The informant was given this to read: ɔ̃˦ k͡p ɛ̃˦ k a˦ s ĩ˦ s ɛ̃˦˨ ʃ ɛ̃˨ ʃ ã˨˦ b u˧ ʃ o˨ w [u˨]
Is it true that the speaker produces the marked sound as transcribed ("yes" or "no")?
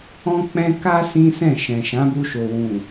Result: no